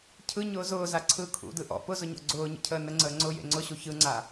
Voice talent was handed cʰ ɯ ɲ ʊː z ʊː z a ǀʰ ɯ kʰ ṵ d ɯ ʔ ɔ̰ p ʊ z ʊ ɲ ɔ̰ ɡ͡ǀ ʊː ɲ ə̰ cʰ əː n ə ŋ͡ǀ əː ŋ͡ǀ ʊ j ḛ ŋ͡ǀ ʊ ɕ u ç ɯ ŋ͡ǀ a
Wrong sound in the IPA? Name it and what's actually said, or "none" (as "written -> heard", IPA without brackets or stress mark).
none